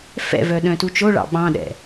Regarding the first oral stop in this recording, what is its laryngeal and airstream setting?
implosive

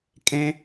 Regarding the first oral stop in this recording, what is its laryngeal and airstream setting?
ejective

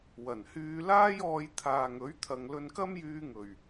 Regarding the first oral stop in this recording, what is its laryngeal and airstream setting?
aspirated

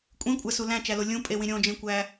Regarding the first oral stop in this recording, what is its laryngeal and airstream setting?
ejective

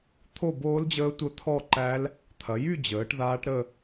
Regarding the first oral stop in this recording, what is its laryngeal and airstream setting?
aspirated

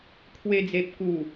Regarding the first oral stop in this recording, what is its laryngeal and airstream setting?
aspirated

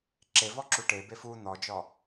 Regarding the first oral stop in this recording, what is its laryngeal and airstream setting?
click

